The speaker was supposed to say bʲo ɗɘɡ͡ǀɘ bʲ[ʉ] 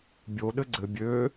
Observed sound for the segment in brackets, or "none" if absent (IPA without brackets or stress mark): ø